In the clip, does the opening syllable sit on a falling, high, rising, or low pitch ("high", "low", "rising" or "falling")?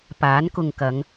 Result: rising